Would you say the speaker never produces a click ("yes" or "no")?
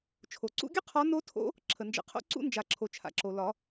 no